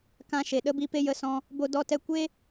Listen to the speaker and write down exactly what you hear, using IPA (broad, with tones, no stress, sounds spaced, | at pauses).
k ã˧ ʃ e˨ ɗ ə˨˦ b i˧ p e˦ j ə˧ s ɔ̃˧ | b o˧ d ɔ˧ t ɛ˧ kʷ e˦